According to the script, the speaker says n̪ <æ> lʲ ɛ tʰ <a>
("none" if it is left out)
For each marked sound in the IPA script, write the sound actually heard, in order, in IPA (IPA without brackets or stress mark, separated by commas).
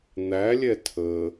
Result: æ, ə